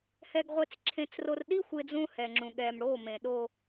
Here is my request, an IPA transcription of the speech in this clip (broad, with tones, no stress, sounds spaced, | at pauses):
h ɛ˦ ɡ ʁʷ e˦ t͡s ǁʰ ẽ˦ t͡s r o˦ r ɗ i˦ xʷ e˦ d͡z ũ˦ h ɛ˨ ŋ͡ǁ ũ˨ ɠ ɛː˨ m ɽ o˦˨ m ẽ˨ ɗ o˦